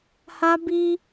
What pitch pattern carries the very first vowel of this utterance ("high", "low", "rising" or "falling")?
high